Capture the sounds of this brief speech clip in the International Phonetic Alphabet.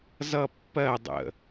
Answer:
z ʌ pː ɜ dˤ ə̰

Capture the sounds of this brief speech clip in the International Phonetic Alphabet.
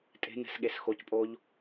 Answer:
tʼ e̤ n ɛ̤ s ɠ e s x o c pʼ o ʎ

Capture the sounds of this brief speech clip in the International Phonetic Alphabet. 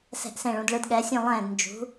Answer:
s ɛ̤˧˩ ʔ s ẽ˧˩ ɭ ũ˩˧ d ɭ ɯ˩˧ d ɠ ɛ˩˧ sʲ ũ˧˩ lˠ ɛ̃ː˧˩ d n d͡ʒ ṳ˩˧

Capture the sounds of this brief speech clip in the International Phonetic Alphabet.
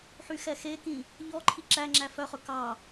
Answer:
ħ y x ɛ x e k ĩ | ʎ ɔ ǃʰ i ǁ æ ŋ͡ǁ æ f œ χ ɵ k ɑ

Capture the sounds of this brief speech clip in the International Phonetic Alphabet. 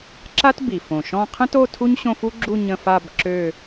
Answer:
ǁ a˥ t b i˨˩ f õ˨˩ ʃ ɔ̃˥˧ qʰ ə̃˥ t o˥˧ tʰ u˥ ɲ ɕ õ˥˧ f u˥ ɡ͡ǁ u˥˧ ɲ ə̃˥˧ f a˥˧ b ǁ ø˥˧

